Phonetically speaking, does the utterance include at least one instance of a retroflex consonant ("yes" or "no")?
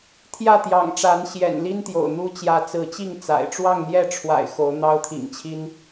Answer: yes